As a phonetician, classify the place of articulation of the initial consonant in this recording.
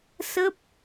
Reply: alveolar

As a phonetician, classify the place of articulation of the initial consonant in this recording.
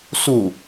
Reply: alveolar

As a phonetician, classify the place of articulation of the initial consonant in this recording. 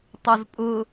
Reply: alveolar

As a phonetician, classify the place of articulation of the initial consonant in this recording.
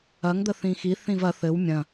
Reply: velar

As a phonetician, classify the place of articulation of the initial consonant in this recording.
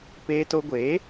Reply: labial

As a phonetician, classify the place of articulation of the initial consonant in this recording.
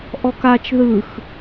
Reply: glottal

